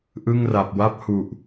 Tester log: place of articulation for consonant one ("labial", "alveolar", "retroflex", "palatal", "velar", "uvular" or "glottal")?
glottal